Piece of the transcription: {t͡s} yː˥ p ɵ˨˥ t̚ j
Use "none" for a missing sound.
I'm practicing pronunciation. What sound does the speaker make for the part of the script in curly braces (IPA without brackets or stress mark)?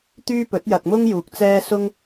t̪